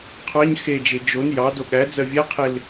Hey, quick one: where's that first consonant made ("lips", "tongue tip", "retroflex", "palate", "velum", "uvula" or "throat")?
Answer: uvula